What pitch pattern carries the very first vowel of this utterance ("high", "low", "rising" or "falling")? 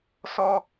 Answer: high